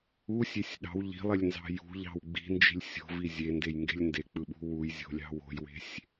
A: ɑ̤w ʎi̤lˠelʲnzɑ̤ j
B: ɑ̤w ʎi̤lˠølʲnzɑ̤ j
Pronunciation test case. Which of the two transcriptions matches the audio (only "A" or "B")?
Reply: A